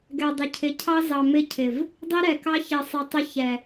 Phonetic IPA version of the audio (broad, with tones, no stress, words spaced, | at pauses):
ɡɛ˨ dˤɪ˨cʰɪ˨˦ cʰɑ˦zɑ˨mɪ˦˨cʰɪ˨v | dˤi˦ɾɛ˨kɑ˦ çe˨sˤɪ˨ tˤɪ˦çɛ˨